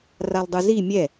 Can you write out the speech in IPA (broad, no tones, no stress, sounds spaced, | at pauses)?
r a lˠ dˤ ɯ z i mʲ ɛ